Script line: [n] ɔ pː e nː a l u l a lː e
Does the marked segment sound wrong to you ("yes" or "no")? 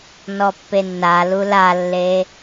no